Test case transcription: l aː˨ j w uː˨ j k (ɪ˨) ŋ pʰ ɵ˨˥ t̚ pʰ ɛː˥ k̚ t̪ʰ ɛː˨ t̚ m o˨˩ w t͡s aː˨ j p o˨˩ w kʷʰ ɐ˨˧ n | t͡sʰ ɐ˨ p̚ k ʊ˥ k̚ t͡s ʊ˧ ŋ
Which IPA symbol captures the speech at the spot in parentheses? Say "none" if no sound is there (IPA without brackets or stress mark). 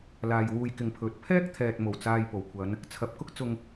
ɪ˨